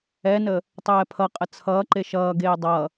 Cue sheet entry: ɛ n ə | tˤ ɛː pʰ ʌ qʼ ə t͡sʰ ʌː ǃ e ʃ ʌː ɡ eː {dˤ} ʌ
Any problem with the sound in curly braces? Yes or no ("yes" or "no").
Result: no